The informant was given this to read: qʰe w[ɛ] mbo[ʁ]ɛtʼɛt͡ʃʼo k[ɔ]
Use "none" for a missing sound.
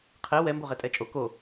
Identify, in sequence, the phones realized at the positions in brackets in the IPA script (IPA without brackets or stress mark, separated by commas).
ɛ, ʁ, o